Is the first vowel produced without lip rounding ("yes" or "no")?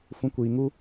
no